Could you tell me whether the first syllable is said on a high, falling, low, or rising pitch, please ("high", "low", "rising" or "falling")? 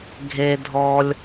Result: low